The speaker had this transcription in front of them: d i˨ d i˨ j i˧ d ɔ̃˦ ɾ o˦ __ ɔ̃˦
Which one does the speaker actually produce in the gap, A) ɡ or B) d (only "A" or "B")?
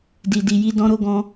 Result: A